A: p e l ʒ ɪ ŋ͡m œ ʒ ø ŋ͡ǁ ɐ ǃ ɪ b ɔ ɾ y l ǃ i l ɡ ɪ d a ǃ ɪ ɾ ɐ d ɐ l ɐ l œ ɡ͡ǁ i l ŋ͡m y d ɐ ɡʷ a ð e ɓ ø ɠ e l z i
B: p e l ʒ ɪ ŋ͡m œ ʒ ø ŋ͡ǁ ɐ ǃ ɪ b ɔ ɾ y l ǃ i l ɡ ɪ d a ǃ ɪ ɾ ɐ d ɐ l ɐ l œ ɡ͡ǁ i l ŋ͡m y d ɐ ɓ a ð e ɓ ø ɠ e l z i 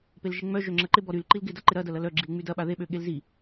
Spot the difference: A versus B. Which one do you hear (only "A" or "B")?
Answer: B